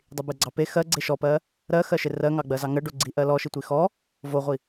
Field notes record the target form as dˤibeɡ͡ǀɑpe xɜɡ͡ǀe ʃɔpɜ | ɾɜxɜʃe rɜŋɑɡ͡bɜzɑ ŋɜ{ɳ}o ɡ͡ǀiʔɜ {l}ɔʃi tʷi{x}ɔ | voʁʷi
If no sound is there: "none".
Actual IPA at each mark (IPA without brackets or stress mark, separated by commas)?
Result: ɖ, l, x